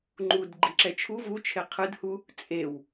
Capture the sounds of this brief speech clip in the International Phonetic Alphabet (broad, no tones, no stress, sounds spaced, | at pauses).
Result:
ŋ͡ǃ u d ɡ͡ǃ i ǁ ɛ t͡ʃʰ u v u t͡ʃʰ e qʰ ɯ d h u | t͡sʼ e w